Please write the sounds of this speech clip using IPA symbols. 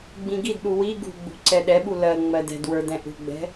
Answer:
ɡ͡bĩɡidɗu wi ɡṳɡ͡bṳ ǀɛɗɛɓu lɜ ŋ͡mɜdɛ̤dwə˞ dɛ̃ʔṳɡ͡bɛ̤

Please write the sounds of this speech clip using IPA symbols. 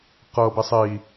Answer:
qɤbi sˤi

